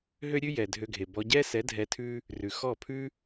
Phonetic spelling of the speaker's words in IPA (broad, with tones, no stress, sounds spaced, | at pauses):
ɦ ø˦ ɾʲ ʉ˦ j ɛ˨ dʱ ø˧ ɡʱ e˨ b ɔ˧ ɟ ɛ˦ s ɛ˨˦ dʱ ɛ˧ tʰ ʉ˦ | r ʉ˨ x ɔ˦˨ pʰ ʉ˦